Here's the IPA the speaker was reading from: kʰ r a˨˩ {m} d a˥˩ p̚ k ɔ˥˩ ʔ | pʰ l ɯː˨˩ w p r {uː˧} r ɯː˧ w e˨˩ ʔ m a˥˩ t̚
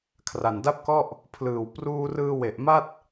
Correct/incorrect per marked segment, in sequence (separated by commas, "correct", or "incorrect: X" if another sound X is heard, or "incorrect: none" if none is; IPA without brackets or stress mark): incorrect: n, correct